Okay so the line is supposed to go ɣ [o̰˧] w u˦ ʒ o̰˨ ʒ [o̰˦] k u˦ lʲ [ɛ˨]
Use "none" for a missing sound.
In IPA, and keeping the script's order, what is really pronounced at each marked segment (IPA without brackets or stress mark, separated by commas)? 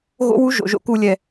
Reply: o̰˦, o̰˧, ɛ˧